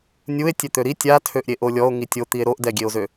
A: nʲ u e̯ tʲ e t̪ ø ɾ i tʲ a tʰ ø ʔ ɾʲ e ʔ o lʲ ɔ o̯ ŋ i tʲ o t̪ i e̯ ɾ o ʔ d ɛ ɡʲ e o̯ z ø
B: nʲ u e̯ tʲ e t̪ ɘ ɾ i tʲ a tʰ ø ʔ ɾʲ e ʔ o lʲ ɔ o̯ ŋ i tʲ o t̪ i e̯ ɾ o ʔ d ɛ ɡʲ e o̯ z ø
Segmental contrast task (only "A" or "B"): A